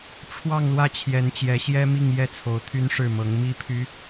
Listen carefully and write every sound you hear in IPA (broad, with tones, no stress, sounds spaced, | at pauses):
ʈ͡ʂʰ w ɑ˥˧ ŋ l w ä˥˩ t͡ɕʰ j ɛ˧˥ n t͡ɕ j ɛ˧˥ ɕ j ɛ˥ m i˥˧ ŋ j ɛ˥˩ t͡sʰ o˧˥ ʊ̯ t̪ʰ y˥ n ʂ ɻ̩˥˩ m ɤ˧˥ ŋ m i˥ pʰ y˥